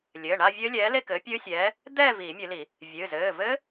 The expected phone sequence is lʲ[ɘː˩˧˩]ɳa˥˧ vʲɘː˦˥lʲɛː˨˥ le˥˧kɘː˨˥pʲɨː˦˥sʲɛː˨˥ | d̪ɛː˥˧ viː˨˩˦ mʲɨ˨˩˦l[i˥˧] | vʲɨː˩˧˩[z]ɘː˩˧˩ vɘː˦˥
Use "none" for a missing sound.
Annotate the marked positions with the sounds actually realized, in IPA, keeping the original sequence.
ɘː˩˧˩, i˨˩˦, z

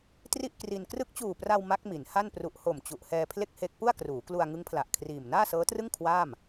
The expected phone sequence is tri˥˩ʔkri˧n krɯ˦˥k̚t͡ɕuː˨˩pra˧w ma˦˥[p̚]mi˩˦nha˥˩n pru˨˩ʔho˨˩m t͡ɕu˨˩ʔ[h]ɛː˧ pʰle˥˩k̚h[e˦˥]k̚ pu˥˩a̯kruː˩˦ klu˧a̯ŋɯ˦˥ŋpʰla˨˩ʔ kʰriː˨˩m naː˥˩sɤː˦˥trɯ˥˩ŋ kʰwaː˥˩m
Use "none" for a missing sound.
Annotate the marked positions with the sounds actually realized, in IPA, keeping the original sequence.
k̚, h, e˦˥

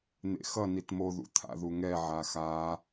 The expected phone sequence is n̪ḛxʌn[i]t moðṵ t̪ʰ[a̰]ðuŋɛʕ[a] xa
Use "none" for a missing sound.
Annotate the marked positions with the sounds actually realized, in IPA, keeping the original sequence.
i, a̰, a

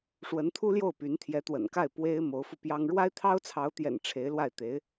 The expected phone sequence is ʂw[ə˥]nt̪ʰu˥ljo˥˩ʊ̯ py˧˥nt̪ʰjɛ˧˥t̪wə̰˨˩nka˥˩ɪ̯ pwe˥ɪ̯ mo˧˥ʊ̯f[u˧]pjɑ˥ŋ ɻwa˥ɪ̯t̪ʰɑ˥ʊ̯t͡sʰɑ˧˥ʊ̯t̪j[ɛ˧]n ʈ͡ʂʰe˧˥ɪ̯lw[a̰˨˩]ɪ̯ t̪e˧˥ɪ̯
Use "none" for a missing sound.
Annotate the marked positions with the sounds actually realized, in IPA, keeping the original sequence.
ə˧˥, u˧, ɛ̰˨˩, a˥˩

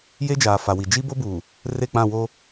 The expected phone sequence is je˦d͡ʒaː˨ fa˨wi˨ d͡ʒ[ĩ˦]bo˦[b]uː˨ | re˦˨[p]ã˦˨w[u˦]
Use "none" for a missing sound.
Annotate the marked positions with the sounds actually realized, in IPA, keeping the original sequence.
i˦, b, k͡p, o˦

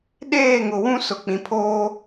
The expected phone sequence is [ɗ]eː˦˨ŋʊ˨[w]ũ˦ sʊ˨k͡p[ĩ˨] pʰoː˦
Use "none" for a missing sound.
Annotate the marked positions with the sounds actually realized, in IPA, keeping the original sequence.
ɗ, w, ĩ˨

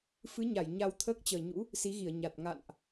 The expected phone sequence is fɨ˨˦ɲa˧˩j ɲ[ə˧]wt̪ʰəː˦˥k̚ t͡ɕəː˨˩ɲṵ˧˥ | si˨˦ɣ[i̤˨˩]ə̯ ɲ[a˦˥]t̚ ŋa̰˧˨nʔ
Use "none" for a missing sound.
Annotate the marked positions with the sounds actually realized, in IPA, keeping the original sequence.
a˧, i˧˩, a˨˩

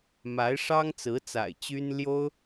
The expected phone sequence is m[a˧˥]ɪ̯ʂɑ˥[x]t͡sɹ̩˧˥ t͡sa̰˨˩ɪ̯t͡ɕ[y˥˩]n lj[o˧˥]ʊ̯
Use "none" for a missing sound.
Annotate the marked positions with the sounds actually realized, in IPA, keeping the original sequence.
a˧˥, ŋ, y˥, o˥

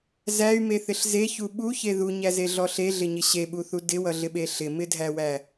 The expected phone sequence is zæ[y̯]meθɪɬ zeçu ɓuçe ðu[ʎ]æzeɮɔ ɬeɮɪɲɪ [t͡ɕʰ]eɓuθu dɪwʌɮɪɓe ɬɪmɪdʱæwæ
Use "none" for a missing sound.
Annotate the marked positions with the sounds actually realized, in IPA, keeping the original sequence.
y̯, ɲ, ɕ

